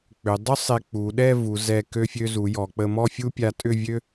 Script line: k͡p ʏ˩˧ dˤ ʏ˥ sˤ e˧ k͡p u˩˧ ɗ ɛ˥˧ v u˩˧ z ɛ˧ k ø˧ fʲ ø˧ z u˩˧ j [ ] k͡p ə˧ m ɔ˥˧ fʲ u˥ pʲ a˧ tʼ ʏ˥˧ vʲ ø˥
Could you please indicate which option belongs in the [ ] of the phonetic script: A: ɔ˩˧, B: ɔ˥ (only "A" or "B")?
A